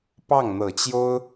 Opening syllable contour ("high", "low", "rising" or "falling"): falling